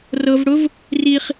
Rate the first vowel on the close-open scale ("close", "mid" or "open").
mid